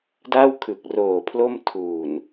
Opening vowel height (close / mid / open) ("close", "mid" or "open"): open